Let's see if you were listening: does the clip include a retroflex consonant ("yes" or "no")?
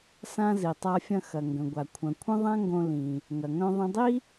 no